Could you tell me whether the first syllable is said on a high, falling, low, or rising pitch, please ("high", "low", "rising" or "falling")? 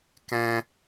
high